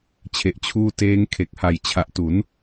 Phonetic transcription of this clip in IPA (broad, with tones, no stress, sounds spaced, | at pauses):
t͡ɕʰ e˨˩ ʔ t͡ɕʰ uː˧ t eː˦˥ ŋ kʰ e˨˩ k̚ h a˨˩ j t͡ɕʰ a˨˩ ʔ t u˩˦ n